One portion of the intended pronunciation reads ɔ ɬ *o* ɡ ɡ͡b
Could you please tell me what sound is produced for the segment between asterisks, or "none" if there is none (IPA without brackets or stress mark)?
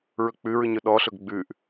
ɵ